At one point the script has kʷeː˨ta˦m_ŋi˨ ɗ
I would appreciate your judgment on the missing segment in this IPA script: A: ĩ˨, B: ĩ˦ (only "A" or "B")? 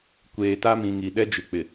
A